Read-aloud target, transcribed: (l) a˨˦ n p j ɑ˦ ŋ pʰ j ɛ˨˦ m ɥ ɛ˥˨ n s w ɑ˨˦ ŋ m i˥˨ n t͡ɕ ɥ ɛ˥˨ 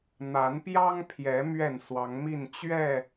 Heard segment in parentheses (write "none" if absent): n̪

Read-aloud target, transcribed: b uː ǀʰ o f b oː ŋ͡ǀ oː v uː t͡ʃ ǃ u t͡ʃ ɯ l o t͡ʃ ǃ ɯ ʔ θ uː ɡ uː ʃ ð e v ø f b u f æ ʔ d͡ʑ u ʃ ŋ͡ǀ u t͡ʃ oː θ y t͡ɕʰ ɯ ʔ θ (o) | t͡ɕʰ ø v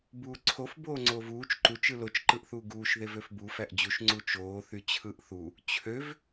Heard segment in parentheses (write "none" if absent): u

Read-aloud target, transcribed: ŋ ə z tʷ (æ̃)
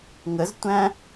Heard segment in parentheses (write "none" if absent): æ̃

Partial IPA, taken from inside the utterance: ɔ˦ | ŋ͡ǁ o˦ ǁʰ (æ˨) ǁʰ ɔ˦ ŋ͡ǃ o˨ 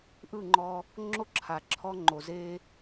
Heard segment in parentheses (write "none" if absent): a˨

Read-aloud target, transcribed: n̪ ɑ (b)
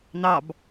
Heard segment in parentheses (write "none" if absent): b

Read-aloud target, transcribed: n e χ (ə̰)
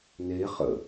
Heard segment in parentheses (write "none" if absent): ə̰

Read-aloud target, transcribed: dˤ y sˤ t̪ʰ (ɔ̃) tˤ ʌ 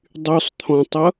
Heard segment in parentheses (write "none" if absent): ɔ̃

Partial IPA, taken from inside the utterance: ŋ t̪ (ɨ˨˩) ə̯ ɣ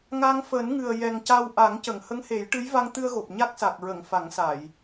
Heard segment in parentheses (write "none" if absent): ɨ˧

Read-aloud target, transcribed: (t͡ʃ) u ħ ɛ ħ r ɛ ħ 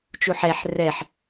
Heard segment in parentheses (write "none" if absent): t͡ʃ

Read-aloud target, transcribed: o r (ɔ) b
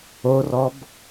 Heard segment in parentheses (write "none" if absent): ɔ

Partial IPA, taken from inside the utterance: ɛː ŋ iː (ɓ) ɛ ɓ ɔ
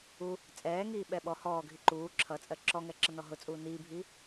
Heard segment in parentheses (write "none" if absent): ɓ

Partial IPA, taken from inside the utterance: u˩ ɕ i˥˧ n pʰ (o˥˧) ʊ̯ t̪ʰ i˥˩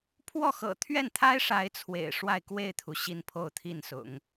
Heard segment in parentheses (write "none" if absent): o˥˧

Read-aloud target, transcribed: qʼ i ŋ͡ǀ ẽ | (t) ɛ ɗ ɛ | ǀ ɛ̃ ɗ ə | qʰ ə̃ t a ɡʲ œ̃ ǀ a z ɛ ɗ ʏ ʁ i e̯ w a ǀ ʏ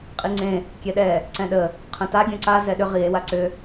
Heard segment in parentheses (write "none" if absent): kʲ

